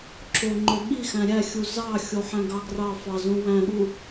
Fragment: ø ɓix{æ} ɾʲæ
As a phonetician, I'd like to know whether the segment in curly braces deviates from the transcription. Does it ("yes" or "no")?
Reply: yes